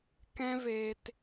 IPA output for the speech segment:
k ɛ̃˦ v eː˧ t

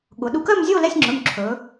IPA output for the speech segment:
ɠ ʊ˩˧ ɗ u˧ k ɜ˥˨ m zʲ o˥˨ l ɛ˧˥˧ sʲ ŋ͡ǁ ɵ˩˧˩ m ǁʰ ɵ˩˧

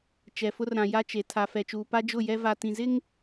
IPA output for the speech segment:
t͡ʃ ɛ˨ f ʊ˦ r ɾ ã˨ j a˦ t͡ʃ e˨ tʰ a˨ f ɛ˨ t͡ʃ uː˨ p a˦ d͡ʒ ʊ˦˨ j ɛ˦ v a˨ t ĩ˨ z ɪ˦ ŋ

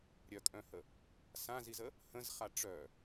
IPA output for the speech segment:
ɾʲ œ kʼ œ̃ h ə | s ã z i z ə | h ə̃ z χ a ʈ͡ʂ œ

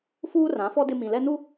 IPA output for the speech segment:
f uː˦ r ã˨˦ f ɔ˦ d ɪ˦ m ĩ˨ l ɛ˦ n u˦

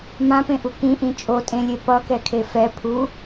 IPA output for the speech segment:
m ã p ẽ ʔ u k ĩ ʔ ĩ t͡ʃʼ o tʼ ẽ lʲ e p ʌ k ɛ kʰ e f ɛ pʰ u

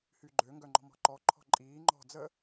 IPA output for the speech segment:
h y ɡ͡ǃ ø ŋ ɡ œ ŋ͡ǃ ɔ̤ m ɔ̤ ǃ ɔ ǃʰ ɔ̤ ǃʼ iː ŋ͡ǃ ɔ̤ d͡z ə

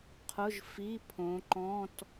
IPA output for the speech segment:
qʰ ʊ˧˥˧ ʒ f i˧˥˧ pʰ õ˨˦ ǃ ɔ̃˧˥˧ t

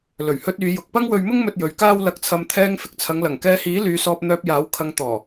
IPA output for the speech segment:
l ɵ˨˩ ɥ h ɵ˧ t̚ yː˨˧ j ʊ˨ k̚ p ɐ˥ ŋ w ɵ˧ ɥ m ʊ˥ ŋ m ɵ˧ t̚ j ɵ˨˧ ɥ k aː˥ w l ɐ˧ k̚ t͡sʰ ɐ˧ m t̪ʰ ɛː˧ ŋ f ɪ˨ k̚ t͡sʰ ɐ˨˧ ŋ l ɐ˨˩ ŋ k ɛː˧ h iː˨˥ l yː˨˧ s ɔː˧ p̚ n̪ œː˧ p̚ j aː˨˥ w kʰ ɐ˧ ŋ t̪ ɔː˨˩

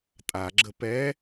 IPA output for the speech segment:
tʼ a ɡ͡ǁ ə p ɛ

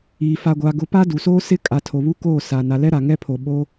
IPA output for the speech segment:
iː˨ f a˨ ɡʷ a˨ ɡ ʊ˨˦ p a˦ d u˨ s oː˦ s ɪ˦ kʼ a˨ tʰ o˨ β u˦ k oː˦˨ s a˨ n a˨ l ɛ˦ ɾ a˨ ŋ ɛ˦ pʰ o˨ ɓ o˦

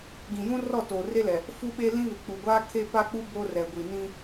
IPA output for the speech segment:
ɡ ĩ˨ j ũ˦ r ɔ˦˨ t oː˨ r e˦ l ɛ˨ | f u˦ ɓ e˦ l ĩ˦ β ɪ˨ k͡p u˨ ɡʷ aː˦ kʰ eː˦ p a˦ k͡p u˦ b oː˦ r ɛ˨ ɡʷ i˨ n ĩ˦

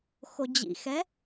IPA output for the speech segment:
x o d͡ʑ ḭ x ɛ

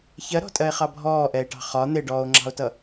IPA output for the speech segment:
ç ɜ ɾ ɔ̤ tʼ ɜ e̯ χ ɑ bʱ ɔː ʔ ɛ e̯ ʈ ɑ̤ χ ɒ n̪ ɪ ɖ ɔː o̯ ŋ͡ǁ ɑ̤ o̯ t ʌ

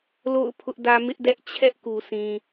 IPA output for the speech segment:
l o̰˦˨ ʊ̯ pʰ ʊ˦ ʔ d ä˦ m ɪ˦ ʔ d ɛ˦ ʔ t͡ɕʰ ɛ˦ ʔ k u˨ sʰ ĩ˨

